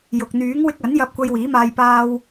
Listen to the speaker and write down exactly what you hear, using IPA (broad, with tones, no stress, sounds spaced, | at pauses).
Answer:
j ʊ˨ k̚ n̪ yː˨˥ ŋ w ɪ˧ k̚ ɐ˨˥ n j ɐ˧ p̚ kʷ ɐ˧ j w iː˨˥ m aː˧ j p aː˧ w